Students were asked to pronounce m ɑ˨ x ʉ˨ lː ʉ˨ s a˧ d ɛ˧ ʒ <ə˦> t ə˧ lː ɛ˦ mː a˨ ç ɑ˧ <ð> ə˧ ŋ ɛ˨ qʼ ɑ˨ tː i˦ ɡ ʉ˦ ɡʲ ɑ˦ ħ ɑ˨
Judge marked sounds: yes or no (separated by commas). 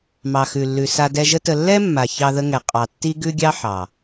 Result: yes, yes